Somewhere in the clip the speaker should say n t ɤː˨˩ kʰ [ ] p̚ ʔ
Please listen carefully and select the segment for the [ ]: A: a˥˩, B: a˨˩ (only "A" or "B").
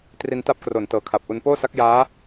B